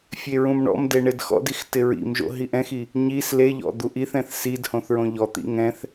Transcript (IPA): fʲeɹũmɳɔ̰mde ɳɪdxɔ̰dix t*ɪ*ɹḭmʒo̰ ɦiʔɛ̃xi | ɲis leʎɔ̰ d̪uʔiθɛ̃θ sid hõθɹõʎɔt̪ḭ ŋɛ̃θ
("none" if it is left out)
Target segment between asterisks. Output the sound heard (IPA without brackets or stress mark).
ɪ